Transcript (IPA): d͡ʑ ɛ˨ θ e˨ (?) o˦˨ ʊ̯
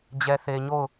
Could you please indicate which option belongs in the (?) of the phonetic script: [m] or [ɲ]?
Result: ɲ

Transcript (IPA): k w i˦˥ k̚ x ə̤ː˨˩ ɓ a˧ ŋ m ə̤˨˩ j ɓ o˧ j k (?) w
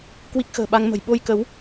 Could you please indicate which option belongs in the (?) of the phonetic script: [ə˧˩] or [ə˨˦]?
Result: ə˨˦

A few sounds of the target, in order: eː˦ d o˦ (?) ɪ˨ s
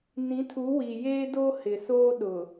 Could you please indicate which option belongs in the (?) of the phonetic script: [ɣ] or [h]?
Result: h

